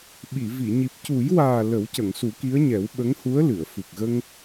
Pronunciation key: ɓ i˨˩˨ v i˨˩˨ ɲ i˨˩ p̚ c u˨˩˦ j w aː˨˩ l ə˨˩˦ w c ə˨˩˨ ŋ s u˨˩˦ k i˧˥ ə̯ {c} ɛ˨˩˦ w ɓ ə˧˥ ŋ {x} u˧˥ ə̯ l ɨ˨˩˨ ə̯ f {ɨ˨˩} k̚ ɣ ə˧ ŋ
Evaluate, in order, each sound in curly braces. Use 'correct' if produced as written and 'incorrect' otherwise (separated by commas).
incorrect, incorrect, correct